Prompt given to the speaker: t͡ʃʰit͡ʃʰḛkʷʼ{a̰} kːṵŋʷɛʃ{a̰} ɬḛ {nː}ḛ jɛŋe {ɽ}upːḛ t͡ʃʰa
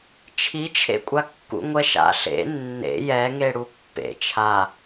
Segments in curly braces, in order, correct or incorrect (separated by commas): incorrect, correct, correct, correct